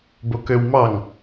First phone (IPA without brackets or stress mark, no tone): b